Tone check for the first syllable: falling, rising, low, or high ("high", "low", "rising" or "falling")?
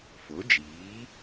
rising